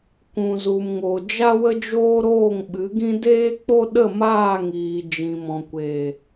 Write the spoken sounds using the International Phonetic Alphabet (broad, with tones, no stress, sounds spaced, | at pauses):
k ũ˨ z u˨ m ŋ o˨ d͡ʒ a˦ w ə˦ d͡ʒ oː˦ ɾ oː˦˨ ŋ ɓ ɨ˨˦ ɡ ĩ˦ d eː˦ k͡p o˦ ɗ ə˦˨ m aː˦˨ ŋ iː˨ d͡ʒ ĩ˨ m ɔ̃˨ kʷ eː˨